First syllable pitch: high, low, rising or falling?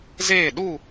falling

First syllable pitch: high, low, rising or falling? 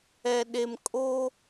low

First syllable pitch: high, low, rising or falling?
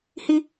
high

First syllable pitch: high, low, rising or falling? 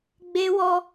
high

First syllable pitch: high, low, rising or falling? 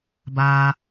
low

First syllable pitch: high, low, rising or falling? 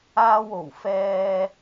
low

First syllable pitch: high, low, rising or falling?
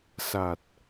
low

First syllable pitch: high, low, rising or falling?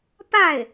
falling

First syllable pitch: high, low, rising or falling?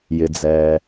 low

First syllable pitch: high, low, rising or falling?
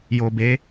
low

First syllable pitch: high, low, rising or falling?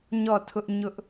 falling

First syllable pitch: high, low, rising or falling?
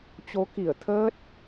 rising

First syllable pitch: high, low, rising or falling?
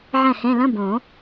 falling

